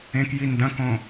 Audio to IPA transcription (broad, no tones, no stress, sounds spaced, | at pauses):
ẽ k j i n d ɐ̃ k õ